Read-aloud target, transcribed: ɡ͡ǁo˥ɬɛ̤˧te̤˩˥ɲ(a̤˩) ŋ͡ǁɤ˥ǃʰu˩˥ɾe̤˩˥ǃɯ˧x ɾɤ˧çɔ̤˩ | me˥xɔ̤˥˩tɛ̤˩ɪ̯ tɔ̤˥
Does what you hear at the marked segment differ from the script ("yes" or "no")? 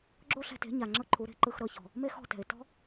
yes